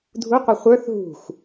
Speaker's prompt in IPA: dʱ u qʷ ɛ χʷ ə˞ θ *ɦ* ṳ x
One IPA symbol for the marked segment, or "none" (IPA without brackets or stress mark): ɦ